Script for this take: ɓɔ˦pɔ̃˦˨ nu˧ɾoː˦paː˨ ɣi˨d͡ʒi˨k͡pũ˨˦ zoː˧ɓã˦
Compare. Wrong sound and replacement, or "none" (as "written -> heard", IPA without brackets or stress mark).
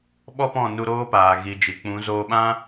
none